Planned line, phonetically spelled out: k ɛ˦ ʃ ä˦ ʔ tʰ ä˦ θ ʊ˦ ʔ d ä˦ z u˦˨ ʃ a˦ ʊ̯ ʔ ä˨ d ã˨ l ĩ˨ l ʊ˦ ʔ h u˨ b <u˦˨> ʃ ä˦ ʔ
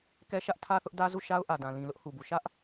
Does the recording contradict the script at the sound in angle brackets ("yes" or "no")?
yes